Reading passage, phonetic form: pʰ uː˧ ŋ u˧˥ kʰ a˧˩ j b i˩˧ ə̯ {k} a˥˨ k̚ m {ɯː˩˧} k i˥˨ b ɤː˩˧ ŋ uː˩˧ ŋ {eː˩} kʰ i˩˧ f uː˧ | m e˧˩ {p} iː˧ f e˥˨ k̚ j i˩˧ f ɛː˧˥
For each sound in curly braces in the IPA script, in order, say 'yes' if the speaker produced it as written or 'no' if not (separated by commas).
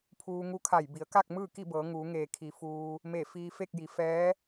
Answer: yes, no, yes, no